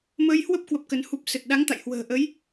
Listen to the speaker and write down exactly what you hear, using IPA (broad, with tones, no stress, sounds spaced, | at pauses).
m əː˧ j h w ə˦˥ p̚ k w ə˦˥ p̚ k ə˧ n h u˦˥ p̚ s ə˨˩ t̚ ɗ a˨˦ ŋ t̪ a̰˧˨ j h w ə̤ː˨˩ ʔ ə˨˦ j